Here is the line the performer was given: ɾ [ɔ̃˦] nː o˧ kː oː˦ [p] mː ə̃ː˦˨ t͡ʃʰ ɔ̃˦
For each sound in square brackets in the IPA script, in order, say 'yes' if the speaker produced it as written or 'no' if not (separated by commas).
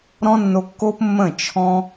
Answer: yes, yes